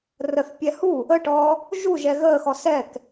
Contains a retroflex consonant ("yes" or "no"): yes